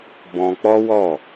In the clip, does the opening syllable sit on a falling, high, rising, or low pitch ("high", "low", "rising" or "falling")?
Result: high